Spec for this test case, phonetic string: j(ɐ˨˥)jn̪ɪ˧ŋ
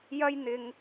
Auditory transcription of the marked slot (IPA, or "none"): ɐ˥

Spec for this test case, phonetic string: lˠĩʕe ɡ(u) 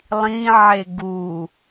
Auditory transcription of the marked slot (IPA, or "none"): u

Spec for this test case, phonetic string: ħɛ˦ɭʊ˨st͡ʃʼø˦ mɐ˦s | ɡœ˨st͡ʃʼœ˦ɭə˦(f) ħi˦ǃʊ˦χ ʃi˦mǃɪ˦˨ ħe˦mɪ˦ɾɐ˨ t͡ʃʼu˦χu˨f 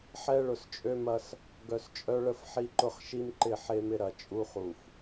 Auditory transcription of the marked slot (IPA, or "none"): f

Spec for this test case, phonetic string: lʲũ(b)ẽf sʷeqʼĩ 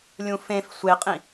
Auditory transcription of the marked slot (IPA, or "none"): f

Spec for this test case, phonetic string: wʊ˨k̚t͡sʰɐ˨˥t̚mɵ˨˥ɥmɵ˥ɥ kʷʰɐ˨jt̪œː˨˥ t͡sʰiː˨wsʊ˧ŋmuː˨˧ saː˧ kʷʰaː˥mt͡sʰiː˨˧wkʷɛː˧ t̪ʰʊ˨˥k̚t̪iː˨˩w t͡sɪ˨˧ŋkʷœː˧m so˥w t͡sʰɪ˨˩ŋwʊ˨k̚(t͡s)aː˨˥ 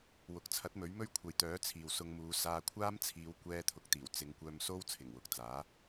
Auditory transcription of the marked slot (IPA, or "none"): t͡s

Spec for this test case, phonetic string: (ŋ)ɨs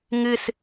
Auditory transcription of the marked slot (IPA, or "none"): ŋ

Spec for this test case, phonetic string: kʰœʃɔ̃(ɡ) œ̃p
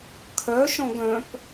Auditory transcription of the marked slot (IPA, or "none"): ɡ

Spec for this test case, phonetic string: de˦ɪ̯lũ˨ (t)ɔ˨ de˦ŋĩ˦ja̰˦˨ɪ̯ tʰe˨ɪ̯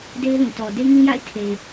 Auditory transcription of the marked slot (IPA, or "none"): t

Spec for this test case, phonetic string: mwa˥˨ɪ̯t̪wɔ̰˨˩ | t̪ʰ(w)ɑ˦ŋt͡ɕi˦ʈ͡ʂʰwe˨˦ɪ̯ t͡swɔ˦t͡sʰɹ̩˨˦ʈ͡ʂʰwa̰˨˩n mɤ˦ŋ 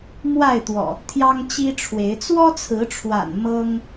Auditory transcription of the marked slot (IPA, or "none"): j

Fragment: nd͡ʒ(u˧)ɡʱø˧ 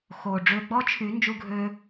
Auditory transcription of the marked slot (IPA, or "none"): u˧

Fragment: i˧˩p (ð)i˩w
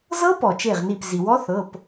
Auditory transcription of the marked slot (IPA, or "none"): z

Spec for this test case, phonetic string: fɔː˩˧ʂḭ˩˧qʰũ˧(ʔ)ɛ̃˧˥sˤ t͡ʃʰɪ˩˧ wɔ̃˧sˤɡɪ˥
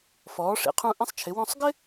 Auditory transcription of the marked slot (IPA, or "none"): ʔ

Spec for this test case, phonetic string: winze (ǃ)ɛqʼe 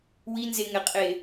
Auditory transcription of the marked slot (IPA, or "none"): ŋ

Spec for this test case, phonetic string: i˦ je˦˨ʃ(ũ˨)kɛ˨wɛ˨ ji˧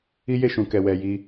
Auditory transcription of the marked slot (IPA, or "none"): ũ˨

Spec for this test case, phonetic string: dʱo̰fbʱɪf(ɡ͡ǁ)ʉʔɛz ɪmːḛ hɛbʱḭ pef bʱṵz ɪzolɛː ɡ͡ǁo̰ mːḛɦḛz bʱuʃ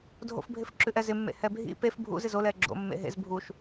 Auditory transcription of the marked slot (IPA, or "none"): ǁ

